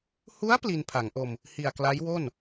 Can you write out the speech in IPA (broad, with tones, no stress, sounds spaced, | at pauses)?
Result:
h u˦˥ a̯ p l i˧ n pʰ a˩˦ ŋ ʔ o˧ m | h i˨˩ a̯ k l a˦˥ j w o˥˩ n